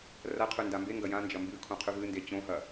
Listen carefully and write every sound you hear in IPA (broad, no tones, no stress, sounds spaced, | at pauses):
r ɐ qʰ ʉ n d a m b e ŋ ɡ ɐ j ã n d͡ʒ ɐ m b ʉ kʰ õ qʰ ʉ v ɨ n d e t͡ɕ õ ɦ ɐ